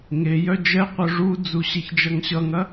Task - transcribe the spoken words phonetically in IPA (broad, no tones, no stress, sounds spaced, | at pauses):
ŋ e j œ d͡ʒ ɛ qʷ œ ʐ u d͡z u ɕ e ç d͡ʒ ʌ ŋ ɕ ʌ ŋ ɐ